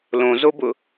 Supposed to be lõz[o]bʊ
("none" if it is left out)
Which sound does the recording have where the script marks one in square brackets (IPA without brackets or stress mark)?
o